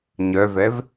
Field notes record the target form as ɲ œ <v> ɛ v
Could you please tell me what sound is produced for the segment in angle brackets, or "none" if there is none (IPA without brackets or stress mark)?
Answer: v